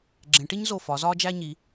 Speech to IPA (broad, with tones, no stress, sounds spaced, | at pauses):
ɡ͡ǁ ẽ˩˧ ʈ i˥ ɲ z o˧˩ f ɒ˩˧ z ɒː˥ d͡ʒ æ˥ ɲ i˩˧